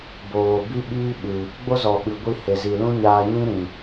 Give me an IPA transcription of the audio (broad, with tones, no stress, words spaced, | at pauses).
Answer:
boː˨bi˦ɓiː˦ ɓɨ˨ | ɡ͡bo˦zɔ˨ ɓɨ˨ɡʷi˧ he˨zi˨ lũ˦ɲaː˧ɲĩ˦ ɾĩ˨